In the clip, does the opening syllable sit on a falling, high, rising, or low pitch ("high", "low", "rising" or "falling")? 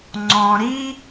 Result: low